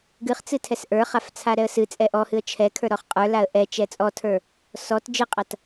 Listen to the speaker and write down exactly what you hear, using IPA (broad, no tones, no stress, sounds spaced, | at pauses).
ɡ ɨ χ t͡s ɨ tʰ ɛ s ʔ ə˞ χ a f t͡sʰ a ɾ ɛ ə̯ s ɨ t͡sʼ ɛ ʔ ɔ h ɨ ə̯ t͡ʃʰ ɛ kʰ ə˞ ɾ ɔ χ qʼ ə˞ l a ə̯ ʔ ɛ t͡ʃ ɛ t͡sʼ ɔ tʰ ə˞ | s ɔ t d͡ʒ ɨ qʼ a t